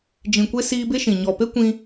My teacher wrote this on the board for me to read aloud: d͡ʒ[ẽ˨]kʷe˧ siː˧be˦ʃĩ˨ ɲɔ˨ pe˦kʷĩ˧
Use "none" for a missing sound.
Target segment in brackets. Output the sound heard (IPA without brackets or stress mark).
ĩ˨